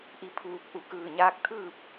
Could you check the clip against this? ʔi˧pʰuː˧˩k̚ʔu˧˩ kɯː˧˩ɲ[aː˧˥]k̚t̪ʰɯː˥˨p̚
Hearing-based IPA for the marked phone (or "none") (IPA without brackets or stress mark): aː˧˥